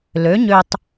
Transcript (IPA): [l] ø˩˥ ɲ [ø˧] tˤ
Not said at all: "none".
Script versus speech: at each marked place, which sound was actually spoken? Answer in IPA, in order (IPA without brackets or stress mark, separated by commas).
l, ø˧